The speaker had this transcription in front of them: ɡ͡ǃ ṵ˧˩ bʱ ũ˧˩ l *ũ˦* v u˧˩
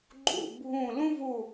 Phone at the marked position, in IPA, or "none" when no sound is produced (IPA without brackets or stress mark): ũ˦